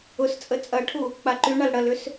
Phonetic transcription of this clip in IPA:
ʊ s t͡sʼ ə t͡sʼ ɐ ʈʰ u | k͡p a ǃ y ɳ a l ɽ ɐ l ʏ s

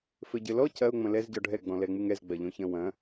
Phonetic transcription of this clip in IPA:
f ɘ ɟ ɘ l ɔ c ɐ ʊ̯ ŋ͡m ɐ̃ l ɛ z ɟ ɔ ɖʱ ɛ ɡ͡b ɔ̃ l ɛ ŋ͡m ɨ ŋ ɛ z ɡ͡b ɐ ʎ õ ç ɐ̃ w ɐ̃

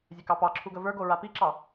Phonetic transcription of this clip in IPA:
zʲ ə k ɑ p ɑ ǁʰ u ɡ ə v ə˞ ɡ o ɹ a p i ǁ ɑ

